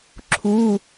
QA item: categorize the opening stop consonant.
click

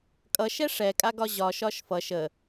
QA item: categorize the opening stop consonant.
ejective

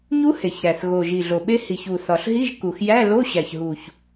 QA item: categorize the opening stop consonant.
implosive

